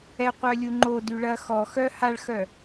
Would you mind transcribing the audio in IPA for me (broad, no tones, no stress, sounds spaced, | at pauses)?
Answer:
ɛ qʷ œ lʲ u ŋ͡ǃ o d y ɭ ɐ x ɔ x œ h a ɭ x œ